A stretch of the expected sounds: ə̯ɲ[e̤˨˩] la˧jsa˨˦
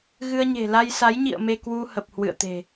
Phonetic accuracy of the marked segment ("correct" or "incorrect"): correct